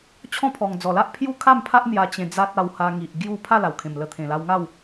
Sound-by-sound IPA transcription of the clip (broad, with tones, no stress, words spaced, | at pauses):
t͡ɕʰɔ̃˥˧pʰɔ˨˩ŋ d͡zɔ˨˩la˦ʔ pʰju˦kʰa˥˧mpʰa˦ʔ n̪ja˧t͡ɕẽ˧d͡za˦t̚ a˧wha˧ŋi˨ʔ ɡju˥˧ pʰa˥˧la˨˩wkʰẽ˨˩m lə˧t̪ʰẽ˨˩la˧w ŋa˥˧w